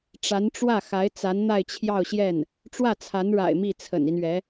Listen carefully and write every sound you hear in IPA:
ʈ͡ʂa˧˥nʈ͡ʂwä˥˩xa˧˥ɪ̯ t͡sa˧˥nn̪a˥˧ɪ̯t͡ɕʰjɑ˥˧ʊ̯ɕjɛ˥˩n | ʈ͡ʂwä˥˩t͡sʰa˧˥nɻa̰˨˩ɪ̯ mi˥˩t͡sʰə̰˨˩ni˦nɥɛ˧˥

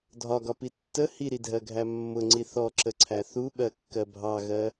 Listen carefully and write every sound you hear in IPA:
dʱɒɡɒpi tːə hiɾidʱɜɡʱæ mːʊŋ͡ǀi θɔǁəǀʰæ θuɓɜkːɜ bʱɑɣɜ

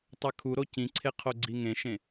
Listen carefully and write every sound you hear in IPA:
tˤɛkʰuɾo cĩǀʰe qʰoɡ͡ǀiŋẽʃẽ

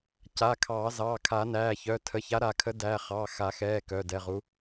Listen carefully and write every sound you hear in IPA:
ca˩˧˩kʰɑː˨˩˦ zɑː˩˧˩kʰa˨˩˦næː˩˧˩çœ˩˧˩ tʰə˩˧˩ça˨˥ ɾa˨˩˦kʰə˨˥dæ˩˧˩ χɑ˩˧˩xa˨˩˦xɛː˩˧˩ kœ˩˧˩dɛ˩˧˩ʁu˨˥

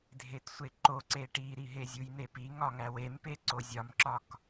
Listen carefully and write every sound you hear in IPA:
dʱetsʷeǃoǀe ʈiɾiɦe zʲujn̪epi ŋɒŋæwempe ǀozʲɒmǁɒk

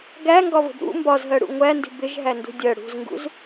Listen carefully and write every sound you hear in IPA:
ɡæŋɡɒvə̤b ɾṵ mbɒzɦɜɽṵ ŋʷændi̤ bɪʒɦændṳ dʲɜ ɽṳzŋɡṵz

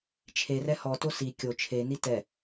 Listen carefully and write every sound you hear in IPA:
t͡ʃʰe rɛhɔto si kʲo t͡ʃʰe nitɛ

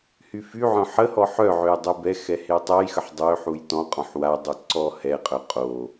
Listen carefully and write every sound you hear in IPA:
hyfyʕœ̃ ħəhɔ ħœʕøj dˤebɛxɛ hetˤɛjxəħ dˤøħuj tɔ̃ qʼɔ̃ħwadˤy ǀɔ hɛqʼœ qʼo

